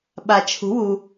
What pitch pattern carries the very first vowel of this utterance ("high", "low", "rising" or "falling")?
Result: low